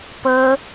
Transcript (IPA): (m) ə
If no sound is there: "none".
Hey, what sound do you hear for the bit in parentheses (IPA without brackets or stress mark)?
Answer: p